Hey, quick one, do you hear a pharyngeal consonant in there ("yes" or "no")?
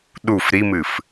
no